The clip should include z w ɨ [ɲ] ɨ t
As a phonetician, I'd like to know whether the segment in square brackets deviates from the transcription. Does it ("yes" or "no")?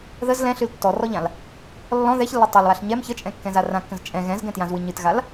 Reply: no